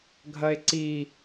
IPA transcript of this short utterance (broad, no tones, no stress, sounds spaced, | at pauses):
ɡʱ ɐ e̯ ǀ i